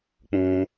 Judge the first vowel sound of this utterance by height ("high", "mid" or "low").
high